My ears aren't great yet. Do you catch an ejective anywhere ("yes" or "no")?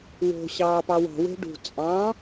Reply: yes